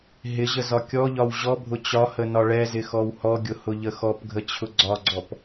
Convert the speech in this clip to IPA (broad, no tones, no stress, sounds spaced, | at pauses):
ɦ ɪ ʑ ə z ɒ kʲ ɔ ʎ ɒ w ʑ ɔ bʱ ʊ t͡ɕ ɒ h ə n ɒ ɭ ɛ z ɪ x ɔ w h ɔ ɡʲ ʊ h ʊ ʎ ə x ɔ p ɡʱ ə t͡ɕʰ ʊ ɡ͡ǀ ɒ ɡ͡ǀ ɔ p